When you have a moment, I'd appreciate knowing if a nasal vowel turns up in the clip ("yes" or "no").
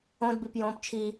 yes